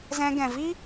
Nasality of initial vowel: nasal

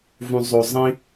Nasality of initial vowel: nasal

